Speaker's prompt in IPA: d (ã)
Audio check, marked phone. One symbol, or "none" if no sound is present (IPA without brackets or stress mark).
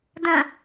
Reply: ə̃